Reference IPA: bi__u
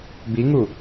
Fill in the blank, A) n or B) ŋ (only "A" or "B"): B